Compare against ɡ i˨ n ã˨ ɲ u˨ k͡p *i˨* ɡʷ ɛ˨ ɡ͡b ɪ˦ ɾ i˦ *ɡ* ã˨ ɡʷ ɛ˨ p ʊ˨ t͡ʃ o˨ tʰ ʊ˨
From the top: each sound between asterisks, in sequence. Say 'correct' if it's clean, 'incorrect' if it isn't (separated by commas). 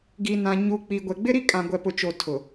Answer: correct, incorrect